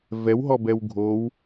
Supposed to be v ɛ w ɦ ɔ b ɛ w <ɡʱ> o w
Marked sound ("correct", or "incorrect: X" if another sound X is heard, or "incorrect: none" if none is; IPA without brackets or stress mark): correct